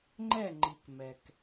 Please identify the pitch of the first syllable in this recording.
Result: falling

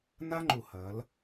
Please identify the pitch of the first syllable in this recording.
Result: high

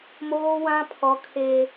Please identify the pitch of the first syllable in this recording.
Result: high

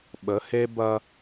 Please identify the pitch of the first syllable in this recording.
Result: rising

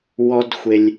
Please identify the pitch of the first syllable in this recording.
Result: high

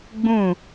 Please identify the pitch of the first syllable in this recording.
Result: falling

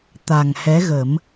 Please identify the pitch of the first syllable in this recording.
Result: low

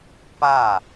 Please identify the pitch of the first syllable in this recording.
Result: falling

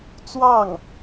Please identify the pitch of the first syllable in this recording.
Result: falling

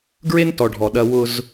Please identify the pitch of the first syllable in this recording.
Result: high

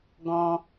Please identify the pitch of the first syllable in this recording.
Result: high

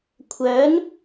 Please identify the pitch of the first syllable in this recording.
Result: rising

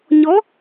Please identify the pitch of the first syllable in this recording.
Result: rising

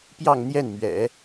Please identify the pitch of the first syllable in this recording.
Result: falling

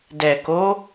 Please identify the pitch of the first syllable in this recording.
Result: low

